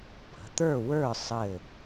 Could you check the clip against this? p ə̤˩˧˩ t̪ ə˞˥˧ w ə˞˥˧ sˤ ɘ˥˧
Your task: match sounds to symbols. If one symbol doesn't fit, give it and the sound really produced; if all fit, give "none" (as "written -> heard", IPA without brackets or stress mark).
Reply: none